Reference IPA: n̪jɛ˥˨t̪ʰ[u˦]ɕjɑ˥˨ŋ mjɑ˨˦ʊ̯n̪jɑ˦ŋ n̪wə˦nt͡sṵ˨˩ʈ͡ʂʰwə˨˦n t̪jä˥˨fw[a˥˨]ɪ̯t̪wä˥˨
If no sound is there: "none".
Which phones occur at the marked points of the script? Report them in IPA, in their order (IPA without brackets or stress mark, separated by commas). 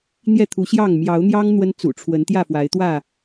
u˨˦, a˨˦